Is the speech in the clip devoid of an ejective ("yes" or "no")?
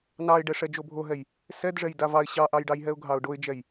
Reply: yes